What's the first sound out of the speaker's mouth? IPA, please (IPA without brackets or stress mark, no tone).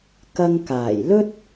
k